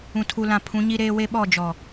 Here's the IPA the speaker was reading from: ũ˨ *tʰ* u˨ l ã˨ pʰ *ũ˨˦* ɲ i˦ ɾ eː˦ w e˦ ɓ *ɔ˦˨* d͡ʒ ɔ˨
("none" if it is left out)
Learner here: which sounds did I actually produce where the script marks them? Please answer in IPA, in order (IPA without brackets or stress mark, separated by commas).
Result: tʰ, ũ˨˦, ɔ˦˨